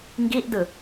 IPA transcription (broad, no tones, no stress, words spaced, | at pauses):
ŋɡiʔdɯ